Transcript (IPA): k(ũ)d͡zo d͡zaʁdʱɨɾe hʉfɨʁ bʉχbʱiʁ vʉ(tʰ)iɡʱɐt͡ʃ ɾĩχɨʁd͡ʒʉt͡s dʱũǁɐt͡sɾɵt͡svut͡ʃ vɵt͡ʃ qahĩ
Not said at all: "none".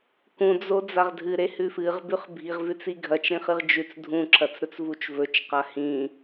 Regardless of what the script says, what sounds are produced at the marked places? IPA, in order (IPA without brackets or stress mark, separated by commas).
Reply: ũ, t͡s